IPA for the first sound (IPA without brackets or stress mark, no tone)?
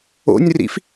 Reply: o̰